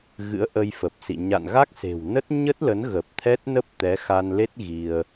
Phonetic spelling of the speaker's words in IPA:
ɣ ɨ̰˧˥ ə̯ ʔ ə˧ j f ə˨˩ p̚ s ḭ˧˨ ɲ a̰˧˨ n ɣ a˦˥ k̚ s e̤˨˩ w n ə˦˥ t̚ ɲ ə˦˥ t̚ l ə˨˦ n ɣ ə˨˩ p̚ t̪ʰ ɛ˦˥ t̚ n ə˦˥ p̚ t̪ ɛ˨˦ x a˧ n l e˦˥ t̚ ɣ i˧ ə̯

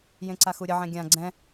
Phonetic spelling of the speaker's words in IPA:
j ẽ ǀ a x u ɾʲ ə ʕ ɛ̃ ɡʲ ã ɡ͡ǀ ɛ̃

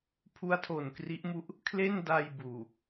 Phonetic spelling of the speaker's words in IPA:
pʰ u˦˥ a̯ tʰ o˨˩ n k r i˦˥ ʔ m u˦˥ ʔ | kʰ l e˥˩ n d a˧ j b uː˨˩

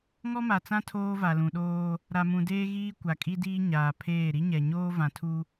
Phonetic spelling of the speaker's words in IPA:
ŋ ɔ˦ m a˨ t͡s ã˦ tʰ oː˦ v a˨ l ũ˨ ɗ oː˦ | ɾ a˨ m ũ˨ d eː˦ ɣ iː˦ kʷ a˨ kʼ i˦ d iː˦ ɲ aː˨ pʰ eː˦˨ ɾ i˦ ɲ ɛ˨ ɲ oː˦ v ã˨ tʰ u˦

